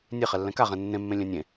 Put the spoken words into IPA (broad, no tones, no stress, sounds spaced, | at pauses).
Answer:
nʲ e χ ɛ lː ɛ̃ k a ʁ ɛ̃ nː ẽ mː ẽ lʲ ɛ̃ nʲ ẽ